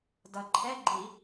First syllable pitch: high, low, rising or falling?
low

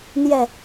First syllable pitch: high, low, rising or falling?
low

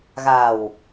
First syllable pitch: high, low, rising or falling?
low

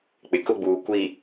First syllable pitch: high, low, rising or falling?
low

